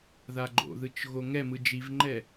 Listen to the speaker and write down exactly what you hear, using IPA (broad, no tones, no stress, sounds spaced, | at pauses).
ð a ɡ͡ǃ o̰ ð ɯ t͡ʃ ɣ o ŋ ɛ m ɯ d͡ʒ i v ŋ͡ǃ ɛ